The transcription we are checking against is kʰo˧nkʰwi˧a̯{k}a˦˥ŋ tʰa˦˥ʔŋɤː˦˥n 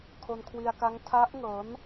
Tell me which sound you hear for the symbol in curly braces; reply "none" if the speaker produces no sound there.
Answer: k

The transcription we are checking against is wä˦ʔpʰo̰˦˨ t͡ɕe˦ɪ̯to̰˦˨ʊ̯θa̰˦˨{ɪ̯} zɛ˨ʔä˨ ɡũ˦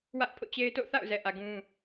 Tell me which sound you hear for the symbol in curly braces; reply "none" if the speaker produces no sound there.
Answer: ʊ̯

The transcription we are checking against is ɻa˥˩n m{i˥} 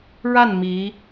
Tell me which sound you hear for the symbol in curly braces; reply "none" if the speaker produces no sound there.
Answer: i˧˥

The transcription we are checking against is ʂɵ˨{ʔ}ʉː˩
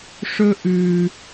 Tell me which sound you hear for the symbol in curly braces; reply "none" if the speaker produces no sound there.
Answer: ʔ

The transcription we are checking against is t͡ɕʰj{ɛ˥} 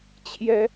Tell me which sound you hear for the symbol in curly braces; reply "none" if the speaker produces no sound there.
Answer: ɛ˥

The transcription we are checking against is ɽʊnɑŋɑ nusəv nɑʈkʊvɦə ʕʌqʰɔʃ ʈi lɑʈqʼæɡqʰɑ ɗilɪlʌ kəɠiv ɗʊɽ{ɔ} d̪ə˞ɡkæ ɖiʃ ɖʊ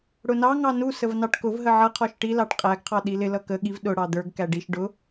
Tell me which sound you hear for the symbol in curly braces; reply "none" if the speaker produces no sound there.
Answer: ɑ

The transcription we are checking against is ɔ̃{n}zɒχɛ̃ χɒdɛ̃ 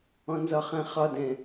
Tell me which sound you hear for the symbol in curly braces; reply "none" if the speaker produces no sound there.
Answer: n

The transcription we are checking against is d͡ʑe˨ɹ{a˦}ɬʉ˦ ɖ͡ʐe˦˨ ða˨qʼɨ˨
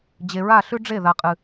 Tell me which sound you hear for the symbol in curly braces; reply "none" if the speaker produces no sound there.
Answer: a˦˨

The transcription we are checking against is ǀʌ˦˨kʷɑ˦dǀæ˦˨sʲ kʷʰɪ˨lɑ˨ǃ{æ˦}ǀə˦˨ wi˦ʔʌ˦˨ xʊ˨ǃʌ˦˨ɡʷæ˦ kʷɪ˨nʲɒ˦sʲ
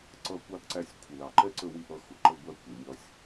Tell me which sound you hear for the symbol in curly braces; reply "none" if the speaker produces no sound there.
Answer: ɛ˦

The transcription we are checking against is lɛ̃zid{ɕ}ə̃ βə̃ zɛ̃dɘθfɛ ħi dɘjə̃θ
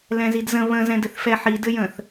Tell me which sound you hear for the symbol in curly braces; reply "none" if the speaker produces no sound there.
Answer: z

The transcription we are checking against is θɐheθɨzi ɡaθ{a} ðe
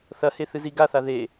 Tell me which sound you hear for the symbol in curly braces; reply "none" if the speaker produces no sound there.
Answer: a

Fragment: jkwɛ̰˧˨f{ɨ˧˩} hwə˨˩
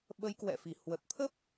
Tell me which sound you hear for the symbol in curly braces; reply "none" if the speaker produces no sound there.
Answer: i˧˩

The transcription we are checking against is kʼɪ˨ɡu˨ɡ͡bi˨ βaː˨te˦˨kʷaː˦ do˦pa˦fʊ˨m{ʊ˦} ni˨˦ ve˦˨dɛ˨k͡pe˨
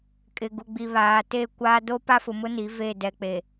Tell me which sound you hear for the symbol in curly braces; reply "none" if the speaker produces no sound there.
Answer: ʊ˦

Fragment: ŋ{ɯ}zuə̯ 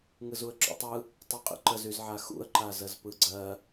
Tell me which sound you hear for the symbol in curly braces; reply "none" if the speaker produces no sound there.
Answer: ɯ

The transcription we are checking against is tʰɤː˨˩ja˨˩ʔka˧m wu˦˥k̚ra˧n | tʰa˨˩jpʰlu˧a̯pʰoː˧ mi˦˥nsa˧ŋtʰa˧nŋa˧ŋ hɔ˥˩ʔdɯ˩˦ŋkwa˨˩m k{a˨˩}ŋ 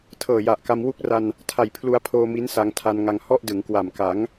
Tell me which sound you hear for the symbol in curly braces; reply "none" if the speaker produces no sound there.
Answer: a˩˦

